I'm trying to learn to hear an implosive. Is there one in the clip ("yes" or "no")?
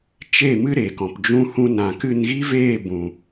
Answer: no